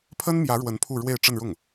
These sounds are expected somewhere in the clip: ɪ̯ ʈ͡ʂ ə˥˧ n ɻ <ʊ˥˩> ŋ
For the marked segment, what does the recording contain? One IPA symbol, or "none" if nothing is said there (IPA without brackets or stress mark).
ʊ˥˩